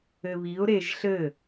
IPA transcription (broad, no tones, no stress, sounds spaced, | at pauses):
ɘ β i ʊ̯ ɾ e ʒ ɬ ɘ